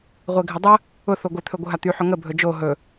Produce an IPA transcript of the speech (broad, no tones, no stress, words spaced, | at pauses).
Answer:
ʁʷeɡʱədˤə | ʊ θoɡʷɪ t̪ʰɵɡʷəɦat̪y ħʊŋə bʱɵd͡ʒo ɦɵ